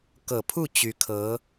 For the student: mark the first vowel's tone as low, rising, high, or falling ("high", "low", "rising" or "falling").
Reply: low